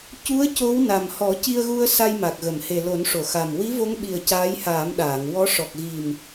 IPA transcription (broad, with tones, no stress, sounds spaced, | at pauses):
c u˧˥ ə̯ c o˧˥ w n a˨˩ m h ɔ˨˩˦ c i˧ ə̯ ɣ u˧ ə̯ s a˧ j m a˨˩ k̚ ɣ ə˨˩˨ m h e˨˩ l o˨˩˦ n ʂ o˨˩˨ x a˨˩ m w i˧˥ v o˧˥ ŋ ɓ i˨˩ ə̯ c aː˧˥ j h aː˨˩˦ m ɗ aː˨˩˨ ŋ w ɔ˧˥ ʂ ɔ˨˩ k̚ ɣ i˨˩ m